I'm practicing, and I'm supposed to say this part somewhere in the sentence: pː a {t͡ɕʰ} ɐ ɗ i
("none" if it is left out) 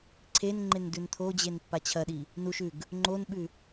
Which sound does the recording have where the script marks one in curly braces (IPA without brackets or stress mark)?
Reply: t͡ɕʰ